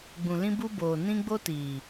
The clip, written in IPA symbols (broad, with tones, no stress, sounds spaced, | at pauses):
ɡ͡b ũ˨ l ĩ˧ b u˧ b oː˨ n ĩ˧ ɡ͡b o˦ t iː˨